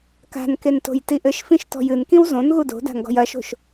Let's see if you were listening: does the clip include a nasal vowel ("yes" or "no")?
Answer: yes